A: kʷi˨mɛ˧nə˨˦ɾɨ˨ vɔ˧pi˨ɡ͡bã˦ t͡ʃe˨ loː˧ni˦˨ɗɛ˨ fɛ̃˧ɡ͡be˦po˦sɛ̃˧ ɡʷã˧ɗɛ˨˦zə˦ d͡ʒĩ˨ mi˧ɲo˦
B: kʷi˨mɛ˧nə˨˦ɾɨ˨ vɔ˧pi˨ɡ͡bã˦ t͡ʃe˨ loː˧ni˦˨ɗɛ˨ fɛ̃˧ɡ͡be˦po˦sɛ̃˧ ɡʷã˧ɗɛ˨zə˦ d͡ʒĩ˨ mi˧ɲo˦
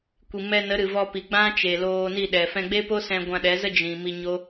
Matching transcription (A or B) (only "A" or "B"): A